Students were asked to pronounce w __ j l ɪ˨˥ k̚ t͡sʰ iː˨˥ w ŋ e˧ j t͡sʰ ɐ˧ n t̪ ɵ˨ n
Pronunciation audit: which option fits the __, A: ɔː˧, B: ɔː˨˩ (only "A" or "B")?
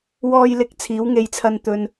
A